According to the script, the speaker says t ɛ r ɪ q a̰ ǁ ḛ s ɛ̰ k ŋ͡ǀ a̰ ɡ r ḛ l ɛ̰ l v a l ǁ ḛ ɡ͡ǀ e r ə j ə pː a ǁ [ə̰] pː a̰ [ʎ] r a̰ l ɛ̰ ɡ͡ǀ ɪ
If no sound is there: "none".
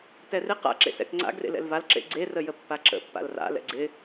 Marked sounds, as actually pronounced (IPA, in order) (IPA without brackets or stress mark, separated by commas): ə̰, l